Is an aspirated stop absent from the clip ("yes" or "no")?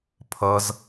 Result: no